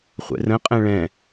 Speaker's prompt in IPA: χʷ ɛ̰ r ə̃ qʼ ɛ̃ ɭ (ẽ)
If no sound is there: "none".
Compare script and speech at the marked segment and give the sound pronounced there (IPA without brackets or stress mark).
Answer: ɛ̃